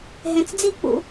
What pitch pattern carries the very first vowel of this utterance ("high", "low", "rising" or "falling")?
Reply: low